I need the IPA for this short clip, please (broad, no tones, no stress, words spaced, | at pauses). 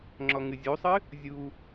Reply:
ŋ͡ǁɔŋɨzʲusˤɨ | zʲu